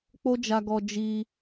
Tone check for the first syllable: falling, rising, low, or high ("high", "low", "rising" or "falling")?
high